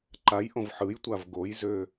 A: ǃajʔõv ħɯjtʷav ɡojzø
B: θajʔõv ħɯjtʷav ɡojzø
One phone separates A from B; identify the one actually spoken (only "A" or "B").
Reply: A